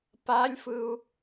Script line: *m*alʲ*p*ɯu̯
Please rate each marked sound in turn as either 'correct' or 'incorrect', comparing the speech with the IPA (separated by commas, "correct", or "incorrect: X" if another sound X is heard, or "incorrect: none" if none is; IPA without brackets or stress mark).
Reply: incorrect: p, incorrect: f